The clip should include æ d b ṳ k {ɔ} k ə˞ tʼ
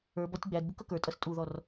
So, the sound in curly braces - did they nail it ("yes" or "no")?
no